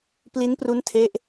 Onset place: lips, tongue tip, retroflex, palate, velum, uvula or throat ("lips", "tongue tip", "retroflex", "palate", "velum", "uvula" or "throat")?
lips